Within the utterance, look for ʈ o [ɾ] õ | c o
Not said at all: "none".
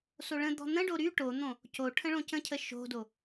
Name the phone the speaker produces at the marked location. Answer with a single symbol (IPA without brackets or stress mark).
n̪